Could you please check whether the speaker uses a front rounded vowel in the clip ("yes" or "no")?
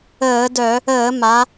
yes